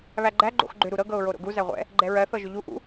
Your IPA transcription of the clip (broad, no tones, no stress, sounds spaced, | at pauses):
β æ ɡ͡ǃ æ ɡ͡ǃ o̰ x ɡ͡ǃ ʏ ɾ u ɾ ɤ ɡ ɤ ʊ̯ ɹ o ɾ o̰ ɡ u z æ ʁʷ ɛ̰ | ɡ͡ǃ ɛ ɹ ɜ θ ɤ ʒ ʏ ʎ u ʔ ṵ